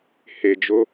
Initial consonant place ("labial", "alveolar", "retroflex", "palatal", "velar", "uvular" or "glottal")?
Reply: glottal